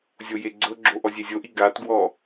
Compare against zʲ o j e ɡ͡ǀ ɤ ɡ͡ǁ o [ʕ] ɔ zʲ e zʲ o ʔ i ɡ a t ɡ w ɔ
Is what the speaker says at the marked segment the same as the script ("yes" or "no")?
no